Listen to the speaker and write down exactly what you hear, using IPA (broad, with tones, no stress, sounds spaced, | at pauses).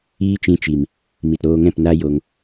iː˦ t͡ʃ ĩ˧ t͡ʃ i˨ m | m i˨ t ɾ oː˧ ŋ ɛ̃˦˨ p n a˦ j o˧ ŋ